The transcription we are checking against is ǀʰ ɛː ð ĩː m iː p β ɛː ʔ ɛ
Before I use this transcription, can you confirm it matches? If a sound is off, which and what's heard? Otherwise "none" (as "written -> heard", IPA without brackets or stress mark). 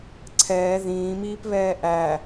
ɛ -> æ